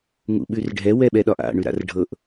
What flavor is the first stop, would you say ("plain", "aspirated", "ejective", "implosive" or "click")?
implosive